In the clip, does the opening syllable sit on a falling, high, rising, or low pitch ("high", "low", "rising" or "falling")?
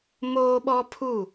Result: high